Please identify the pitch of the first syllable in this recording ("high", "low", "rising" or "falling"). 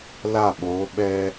falling